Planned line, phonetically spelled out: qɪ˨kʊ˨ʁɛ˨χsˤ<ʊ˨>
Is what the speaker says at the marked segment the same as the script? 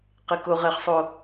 yes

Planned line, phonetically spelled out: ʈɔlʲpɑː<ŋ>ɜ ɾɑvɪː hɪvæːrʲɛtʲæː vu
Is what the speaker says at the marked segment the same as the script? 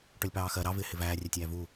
no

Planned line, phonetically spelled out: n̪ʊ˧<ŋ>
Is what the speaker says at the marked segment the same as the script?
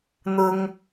yes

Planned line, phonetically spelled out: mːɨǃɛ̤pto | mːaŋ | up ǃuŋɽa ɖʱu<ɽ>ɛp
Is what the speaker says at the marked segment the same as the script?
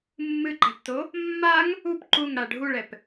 no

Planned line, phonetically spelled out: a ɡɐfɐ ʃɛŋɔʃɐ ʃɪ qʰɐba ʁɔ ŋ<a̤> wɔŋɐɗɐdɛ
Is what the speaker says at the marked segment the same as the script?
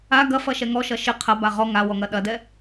no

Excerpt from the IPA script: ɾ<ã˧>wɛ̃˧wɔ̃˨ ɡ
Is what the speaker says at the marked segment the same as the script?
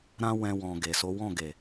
no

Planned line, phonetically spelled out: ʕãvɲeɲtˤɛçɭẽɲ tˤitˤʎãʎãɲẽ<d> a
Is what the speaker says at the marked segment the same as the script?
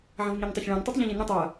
no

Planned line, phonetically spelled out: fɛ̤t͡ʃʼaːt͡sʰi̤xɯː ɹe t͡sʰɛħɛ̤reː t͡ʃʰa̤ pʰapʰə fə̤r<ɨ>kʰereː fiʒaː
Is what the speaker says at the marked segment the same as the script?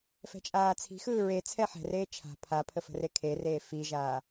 no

